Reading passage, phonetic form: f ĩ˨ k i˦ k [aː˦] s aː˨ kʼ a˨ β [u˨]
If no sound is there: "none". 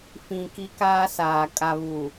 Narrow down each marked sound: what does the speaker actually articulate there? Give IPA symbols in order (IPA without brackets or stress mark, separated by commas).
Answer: aː˦, u˨